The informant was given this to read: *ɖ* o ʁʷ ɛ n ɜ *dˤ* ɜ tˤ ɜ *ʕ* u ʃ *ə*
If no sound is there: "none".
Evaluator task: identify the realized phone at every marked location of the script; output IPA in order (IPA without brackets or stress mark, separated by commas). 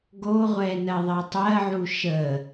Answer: ɡ, ðˤ, ʕ, ə